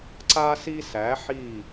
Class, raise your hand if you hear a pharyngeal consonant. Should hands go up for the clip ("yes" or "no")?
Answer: yes